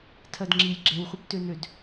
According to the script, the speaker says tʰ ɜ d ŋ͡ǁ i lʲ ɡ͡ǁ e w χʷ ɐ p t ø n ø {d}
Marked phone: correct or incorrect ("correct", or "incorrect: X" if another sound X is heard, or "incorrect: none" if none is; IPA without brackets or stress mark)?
correct